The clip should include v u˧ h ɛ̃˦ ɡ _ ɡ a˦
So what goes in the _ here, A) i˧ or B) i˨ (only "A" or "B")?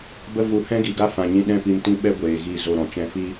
B